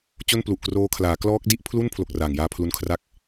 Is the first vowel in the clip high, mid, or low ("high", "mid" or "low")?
mid